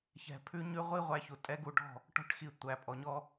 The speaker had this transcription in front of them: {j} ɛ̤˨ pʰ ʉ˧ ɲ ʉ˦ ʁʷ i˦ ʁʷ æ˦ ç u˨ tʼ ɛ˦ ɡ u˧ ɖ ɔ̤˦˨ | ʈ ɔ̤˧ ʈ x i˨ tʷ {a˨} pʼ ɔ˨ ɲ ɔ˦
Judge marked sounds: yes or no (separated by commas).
no, no